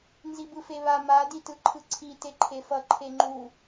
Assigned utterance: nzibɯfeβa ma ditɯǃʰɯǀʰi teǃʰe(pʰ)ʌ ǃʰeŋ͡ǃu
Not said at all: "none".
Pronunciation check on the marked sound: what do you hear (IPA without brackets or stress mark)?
f